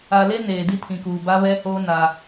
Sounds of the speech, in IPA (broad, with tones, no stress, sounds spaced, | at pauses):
a˨ l e˦ n eː˨ d i˦ tʰ ĩ˨ k uː˨ b a˦ β ɛ˦ h oː˦ n a˦